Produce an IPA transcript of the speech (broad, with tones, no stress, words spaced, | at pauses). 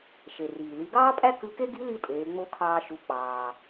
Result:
ʃe˩riː˩ li˩˧ɡɑː˥pʼæ˥ kɯ˧˥ke˥ ɡi˧˥li˧ tʼeː˩˧ŋ͡mo˧˥kʰɑː˧ ʃu˩˧k͡pɑː˩